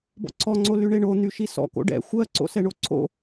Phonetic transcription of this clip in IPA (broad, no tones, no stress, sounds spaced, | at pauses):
b ɔ̰ ǀʰ ɔ ŋ͡ǀ o l y ɳ e ɳ o n̪ y ʃ i s ɔ̰ k o̰ ɖ ɛ̰ xʷ ɜ ǀ o̰ s ɛ ɳ o ǀʰ o̰